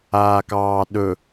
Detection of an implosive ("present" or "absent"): present